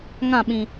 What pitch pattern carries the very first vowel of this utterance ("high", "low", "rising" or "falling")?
falling